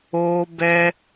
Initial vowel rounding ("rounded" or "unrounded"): rounded